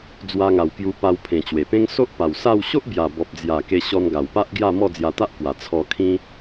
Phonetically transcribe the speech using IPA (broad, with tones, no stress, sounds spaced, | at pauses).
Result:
d͡z w a˧ ŋ a˨˩ w k j u˧ p a˧ w pʰ ẽ˨˩ t͡ɕ w e˨˩ p ẽ˦ ŋ s o˦ ʔ p a˨˩ w s a˥˧ w ɕ o˦ ʔ b j a˨˩ b ɔ˨ p̚ d͡z j a˨˩ k e˧ ɕ ɔ˧ n ɡ a˨˩ w p a˦ ʔ ɡ j a˥˧ m ɔ˥˧ d͡z j a˧ t̪ a˦ ʔ k w a˨˩ t͡sʰ ɔ˧ kʰ ĩ˦